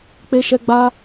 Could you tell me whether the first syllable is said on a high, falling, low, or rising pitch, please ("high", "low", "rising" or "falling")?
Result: high